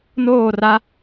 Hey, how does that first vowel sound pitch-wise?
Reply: falling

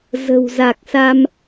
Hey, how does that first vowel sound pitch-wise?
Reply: low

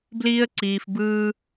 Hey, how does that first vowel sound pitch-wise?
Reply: high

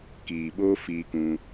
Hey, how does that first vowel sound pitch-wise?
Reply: low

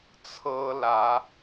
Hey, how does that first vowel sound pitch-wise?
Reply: high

